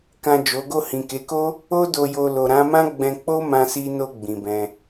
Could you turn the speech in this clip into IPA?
k ã˨ d͡ʒ o˨˦ ɡ o˦˨ h ĩ˨ k e˨˦ k o˦ | o˧ d o˨ j o˨ l o˨ ɾ ã˨˦ m ã˦ ɡ͡b ɛ̃˧ k͡p o˦ m ã˧ s i˧ n o˧ ɡ͡b ĩ˨ b ɛ̃˧

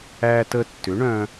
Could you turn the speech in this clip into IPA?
æ˧ t ə˧ tː ʏ˩˥ ɳ œ̃˧

